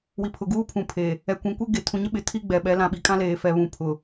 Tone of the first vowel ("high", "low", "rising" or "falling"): low